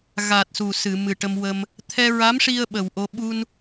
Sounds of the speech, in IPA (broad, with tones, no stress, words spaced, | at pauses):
ɣa˨˩t̚ su˨˩sɨ˨˩˨ mɨ˨˩ʈə˧mwə˧m | t̪ʰɛ˧ɹa˧˥mʂi˧ə̯ ɓə˨˩wʔo˧ ɓu˧n